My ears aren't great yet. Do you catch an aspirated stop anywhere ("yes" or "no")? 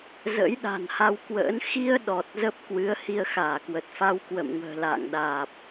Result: no